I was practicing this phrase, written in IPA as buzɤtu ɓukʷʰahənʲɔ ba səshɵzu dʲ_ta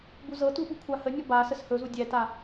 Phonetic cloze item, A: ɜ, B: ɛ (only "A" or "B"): B